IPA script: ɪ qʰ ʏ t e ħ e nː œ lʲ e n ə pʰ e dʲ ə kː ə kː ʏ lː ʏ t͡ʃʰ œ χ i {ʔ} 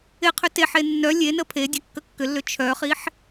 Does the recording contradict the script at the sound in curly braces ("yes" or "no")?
yes